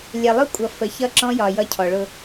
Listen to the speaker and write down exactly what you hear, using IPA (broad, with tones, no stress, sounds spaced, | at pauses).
lʲ ɛ˨ lˠ ʊ˦ kʷʼ ʌ˨ f ə˨ ç ʌ˦ ǁ ɔ̃˦ j ɒ˨ j ʌ˦ cʰ ɔ˨ ɭ ʊ˦